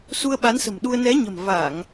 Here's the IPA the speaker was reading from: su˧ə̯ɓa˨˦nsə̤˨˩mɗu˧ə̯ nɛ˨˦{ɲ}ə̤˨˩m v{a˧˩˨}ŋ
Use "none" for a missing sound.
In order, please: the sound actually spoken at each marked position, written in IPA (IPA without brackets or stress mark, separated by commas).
ɲ, a˧˩˨